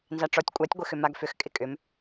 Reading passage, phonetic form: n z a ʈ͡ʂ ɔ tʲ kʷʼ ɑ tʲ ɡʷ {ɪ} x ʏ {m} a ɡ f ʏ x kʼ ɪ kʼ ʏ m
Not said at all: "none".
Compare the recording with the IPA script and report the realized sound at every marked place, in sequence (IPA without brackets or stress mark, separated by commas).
ɪ, m